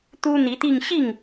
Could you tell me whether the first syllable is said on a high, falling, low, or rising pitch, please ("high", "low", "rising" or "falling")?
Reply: high